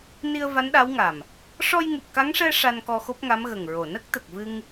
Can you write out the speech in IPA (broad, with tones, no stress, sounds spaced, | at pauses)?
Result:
n i˧ ə̯ v a˧˥ n ɗ a˧˥ w ŋ a˨˩ m | ʂ ɔ˧ j ŋ u˨˩ p̚ k a˧˥ ŋ ʂ ɛ˧ ʂ a˧ n k ɔ˧ x o˦˥ p̚ ŋ a˧˥ m ɣ ə˨˩ ŋ ɹ o˨˩ n ə˦˥ k̚ t̪ ə˨˩ k̚ v ɨ˧ ŋ